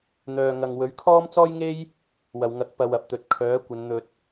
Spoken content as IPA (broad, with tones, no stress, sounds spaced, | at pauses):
n̪ œː˨ ŋ ɐ˨ ŋ w ɵ˨˥ ɥ kʰ ɔː˥ m t͡s ɔː˥ j ŋ e˥ j | w ɐ˨ w ŋ ɐ˨˥ k̚ p ɐ˨ w ɐ˨ p̚ t̪ ɵ˨ t̚ kʰ œː˨˥ kʷ ɐ˨˧ n n̪ ɵ˨ t̚